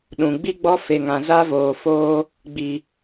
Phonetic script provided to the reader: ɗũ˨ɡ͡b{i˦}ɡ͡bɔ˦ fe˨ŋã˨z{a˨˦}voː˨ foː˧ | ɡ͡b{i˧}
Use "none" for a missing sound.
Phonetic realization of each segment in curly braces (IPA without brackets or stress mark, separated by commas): i˦, a˦, i˨